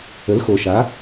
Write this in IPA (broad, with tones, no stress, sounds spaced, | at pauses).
ə˨˥ l x o˨ ʃ a˨˥